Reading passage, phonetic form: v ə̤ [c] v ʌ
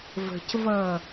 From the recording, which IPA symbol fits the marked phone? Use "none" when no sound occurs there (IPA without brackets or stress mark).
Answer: c